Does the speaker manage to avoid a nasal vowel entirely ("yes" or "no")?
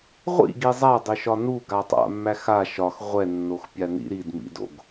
yes